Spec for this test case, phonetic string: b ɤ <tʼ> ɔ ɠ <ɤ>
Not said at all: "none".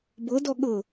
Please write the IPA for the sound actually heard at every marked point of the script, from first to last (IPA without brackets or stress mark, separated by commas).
d, ɤ